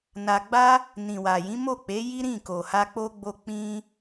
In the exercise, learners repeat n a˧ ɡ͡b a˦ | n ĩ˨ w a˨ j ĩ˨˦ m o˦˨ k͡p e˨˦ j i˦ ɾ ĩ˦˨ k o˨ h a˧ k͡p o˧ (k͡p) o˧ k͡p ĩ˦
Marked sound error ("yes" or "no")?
yes